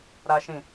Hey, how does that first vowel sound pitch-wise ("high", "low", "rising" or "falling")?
high